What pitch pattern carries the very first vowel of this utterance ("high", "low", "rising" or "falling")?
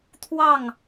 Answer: falling